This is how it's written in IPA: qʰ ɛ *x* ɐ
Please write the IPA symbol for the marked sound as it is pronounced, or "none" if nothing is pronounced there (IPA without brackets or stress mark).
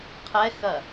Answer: x